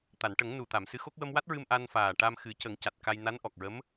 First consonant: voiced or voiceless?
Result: voiceless